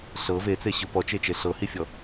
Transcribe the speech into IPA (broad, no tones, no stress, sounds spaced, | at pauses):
ɬ ɤ v e t͡s e ɕ ɯ p ɔ t͡ʃ e t͡ʃ e ɬ ɤ h i fʲ ɔ